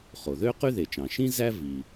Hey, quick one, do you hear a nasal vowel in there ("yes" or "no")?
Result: yes